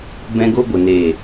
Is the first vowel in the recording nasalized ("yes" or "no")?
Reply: yes